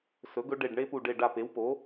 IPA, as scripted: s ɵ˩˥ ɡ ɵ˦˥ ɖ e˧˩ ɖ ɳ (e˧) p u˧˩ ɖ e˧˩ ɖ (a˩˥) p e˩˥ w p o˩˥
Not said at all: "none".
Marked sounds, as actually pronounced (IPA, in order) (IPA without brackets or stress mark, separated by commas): e˦˥, a˧˩